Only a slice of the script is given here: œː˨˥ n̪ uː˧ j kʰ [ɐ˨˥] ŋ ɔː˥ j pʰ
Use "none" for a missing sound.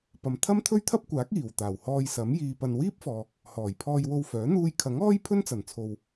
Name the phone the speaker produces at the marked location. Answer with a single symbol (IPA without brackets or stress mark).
ɐ˨˥